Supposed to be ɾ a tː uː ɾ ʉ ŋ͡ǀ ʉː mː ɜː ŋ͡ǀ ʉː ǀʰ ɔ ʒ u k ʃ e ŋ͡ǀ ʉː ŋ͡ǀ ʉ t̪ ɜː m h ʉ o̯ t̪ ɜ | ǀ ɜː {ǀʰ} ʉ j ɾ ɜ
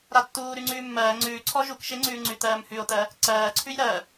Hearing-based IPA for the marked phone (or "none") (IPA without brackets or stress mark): ǀʰ